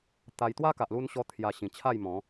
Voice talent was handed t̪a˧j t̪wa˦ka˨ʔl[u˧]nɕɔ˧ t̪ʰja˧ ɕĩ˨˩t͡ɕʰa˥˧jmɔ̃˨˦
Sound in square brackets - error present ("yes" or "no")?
no